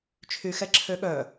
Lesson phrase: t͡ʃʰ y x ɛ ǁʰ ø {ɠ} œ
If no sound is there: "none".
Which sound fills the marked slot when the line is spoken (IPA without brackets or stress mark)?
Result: ɠ